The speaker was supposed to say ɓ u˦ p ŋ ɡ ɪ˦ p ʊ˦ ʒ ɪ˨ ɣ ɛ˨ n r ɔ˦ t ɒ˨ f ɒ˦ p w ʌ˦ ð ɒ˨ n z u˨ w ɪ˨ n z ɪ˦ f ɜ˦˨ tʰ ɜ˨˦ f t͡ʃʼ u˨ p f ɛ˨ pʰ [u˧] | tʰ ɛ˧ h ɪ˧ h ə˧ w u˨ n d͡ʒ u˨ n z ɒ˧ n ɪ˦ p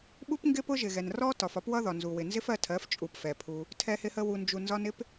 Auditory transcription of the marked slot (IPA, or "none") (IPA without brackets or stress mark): u˧